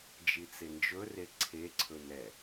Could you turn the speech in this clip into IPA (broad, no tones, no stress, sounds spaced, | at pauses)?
d͡ʒ i t͡s e n d͡ʒ ɵ r e ǀʰ e ǀʰ ɵ n ɛ